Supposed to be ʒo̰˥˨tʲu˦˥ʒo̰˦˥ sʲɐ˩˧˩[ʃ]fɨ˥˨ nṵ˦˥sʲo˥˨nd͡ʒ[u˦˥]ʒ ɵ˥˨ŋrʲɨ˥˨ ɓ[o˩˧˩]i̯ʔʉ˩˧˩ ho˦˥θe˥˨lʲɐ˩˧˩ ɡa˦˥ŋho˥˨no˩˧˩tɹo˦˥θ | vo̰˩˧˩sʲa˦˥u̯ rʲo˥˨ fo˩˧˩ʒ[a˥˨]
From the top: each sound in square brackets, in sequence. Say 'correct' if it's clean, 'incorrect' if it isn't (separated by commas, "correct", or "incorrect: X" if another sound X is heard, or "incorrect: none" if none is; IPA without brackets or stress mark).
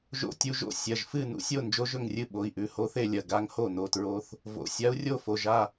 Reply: incorrect: ʒ, incorrect: o˦˥, correct, correct